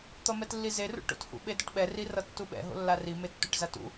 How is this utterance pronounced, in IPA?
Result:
t̪ʌmɛtlːize rṵʈo̰thṵ ɓedʌʈɓɛ rirʌtːuɓɛ̰ ɦo̰lːari metːuʈzatṵ

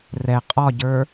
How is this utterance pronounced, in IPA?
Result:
rɛ qʼɒɟə˞

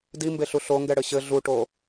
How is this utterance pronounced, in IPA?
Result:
dimbeɬu ɬoŋɡɛɽɘ ɕɘ ɮuʈo

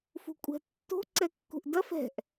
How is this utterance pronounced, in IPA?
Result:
fṳkʷʼɛ̤tːo̤ ǀɛkːṳʔdɐf ɛ̤ʔ

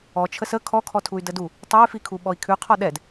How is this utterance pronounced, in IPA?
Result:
ɔt͡ʃʰəs ə kʰɔkʰɔtʰuy̯ dədu | tˤɛy̯fikʰu ɓɔi̯kʰʉqʰɔ ɗɛd

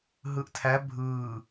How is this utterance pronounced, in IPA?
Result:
ɦɯːʔtʰæ bʱɯː

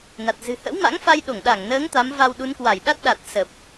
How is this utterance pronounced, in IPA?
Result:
na˨˩t̚zɨ̤˨˩ hə̰˧˥wma̰˧˥ŋ fa˧jɗo˧˩ŋɗa˧˩ŋnəː˨˦ŋ t̪a˨˦mva˧wɗu˨˦nkwa˧˩j ɗa˦˥t̚ɗa˨˩t̚sə˨˩p̚

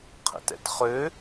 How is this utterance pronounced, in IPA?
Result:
qʰə̰tɛ̰tχø

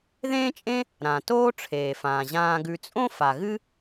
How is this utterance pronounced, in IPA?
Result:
ðẽː˦t͡ʃʼẽ˦ | ɾã˩ toː˥ʈ͡ʂʰeː˩fãː˩ ʑãː˨ɡʉ˨t͡sʼõ˥ fa˩ ɣɨ˦

